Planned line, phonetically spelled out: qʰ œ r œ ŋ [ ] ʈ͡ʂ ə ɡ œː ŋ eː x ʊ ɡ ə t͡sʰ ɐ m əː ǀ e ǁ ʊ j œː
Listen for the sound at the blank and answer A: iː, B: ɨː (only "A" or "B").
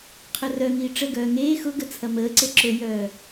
A